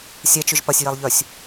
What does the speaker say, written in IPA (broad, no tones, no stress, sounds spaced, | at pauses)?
sʲ ɛ t͡ʃ ʏ ʒ p ɐ sʲ j ɛ lˠ ʎ œ sʲ